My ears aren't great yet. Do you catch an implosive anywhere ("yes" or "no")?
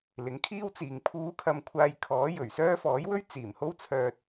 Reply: no